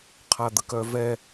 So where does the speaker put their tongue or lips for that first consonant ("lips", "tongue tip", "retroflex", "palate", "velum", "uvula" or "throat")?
uvula